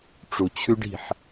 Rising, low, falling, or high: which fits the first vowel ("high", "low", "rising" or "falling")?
low